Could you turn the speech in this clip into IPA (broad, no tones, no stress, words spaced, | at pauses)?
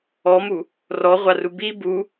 ɔmu | rɔʁʷaru bi bu